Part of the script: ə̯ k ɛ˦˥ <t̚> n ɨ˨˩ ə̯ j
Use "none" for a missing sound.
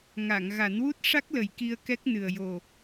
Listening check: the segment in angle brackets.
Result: k̚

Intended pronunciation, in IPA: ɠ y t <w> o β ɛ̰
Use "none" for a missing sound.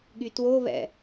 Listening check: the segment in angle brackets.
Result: w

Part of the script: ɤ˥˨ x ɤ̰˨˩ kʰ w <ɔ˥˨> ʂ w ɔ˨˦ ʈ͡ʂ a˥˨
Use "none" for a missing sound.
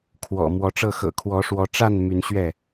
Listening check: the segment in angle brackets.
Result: ɔ˨˦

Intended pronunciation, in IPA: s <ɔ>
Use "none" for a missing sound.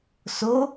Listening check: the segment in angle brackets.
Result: o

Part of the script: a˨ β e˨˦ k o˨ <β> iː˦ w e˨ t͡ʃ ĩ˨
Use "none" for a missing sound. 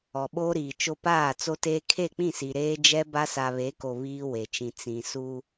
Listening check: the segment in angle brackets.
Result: β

